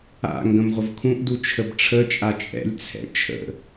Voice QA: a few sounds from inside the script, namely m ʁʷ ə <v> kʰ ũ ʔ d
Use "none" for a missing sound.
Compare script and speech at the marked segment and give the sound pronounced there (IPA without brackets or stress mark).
v